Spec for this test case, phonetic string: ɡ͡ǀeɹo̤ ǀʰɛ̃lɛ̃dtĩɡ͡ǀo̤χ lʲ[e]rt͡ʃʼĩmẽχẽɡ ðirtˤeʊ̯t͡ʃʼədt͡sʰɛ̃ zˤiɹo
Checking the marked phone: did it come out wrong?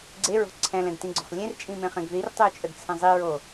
yes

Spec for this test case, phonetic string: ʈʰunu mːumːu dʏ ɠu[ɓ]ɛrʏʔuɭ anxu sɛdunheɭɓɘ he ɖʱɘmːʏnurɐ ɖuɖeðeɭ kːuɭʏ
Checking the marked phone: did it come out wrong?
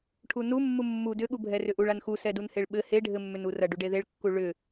yes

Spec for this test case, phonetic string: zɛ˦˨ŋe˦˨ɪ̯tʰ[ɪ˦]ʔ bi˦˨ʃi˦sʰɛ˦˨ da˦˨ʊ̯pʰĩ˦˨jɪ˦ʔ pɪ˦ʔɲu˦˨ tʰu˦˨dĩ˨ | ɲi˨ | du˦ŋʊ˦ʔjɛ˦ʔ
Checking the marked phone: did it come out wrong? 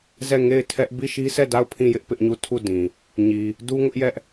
yes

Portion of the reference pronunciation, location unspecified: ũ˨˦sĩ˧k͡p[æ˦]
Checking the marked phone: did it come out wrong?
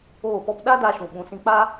yes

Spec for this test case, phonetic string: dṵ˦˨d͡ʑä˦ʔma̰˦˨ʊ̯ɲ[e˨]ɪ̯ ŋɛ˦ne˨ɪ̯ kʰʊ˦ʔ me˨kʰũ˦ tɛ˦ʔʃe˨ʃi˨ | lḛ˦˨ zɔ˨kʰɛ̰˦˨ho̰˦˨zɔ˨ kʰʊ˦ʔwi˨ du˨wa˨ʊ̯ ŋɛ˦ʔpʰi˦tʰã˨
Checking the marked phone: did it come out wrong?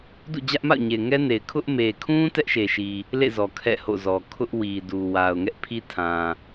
no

